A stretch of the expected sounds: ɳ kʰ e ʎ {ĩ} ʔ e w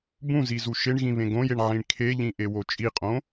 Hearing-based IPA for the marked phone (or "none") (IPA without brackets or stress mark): ĩ